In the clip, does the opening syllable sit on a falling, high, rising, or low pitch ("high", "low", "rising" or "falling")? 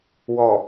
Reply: low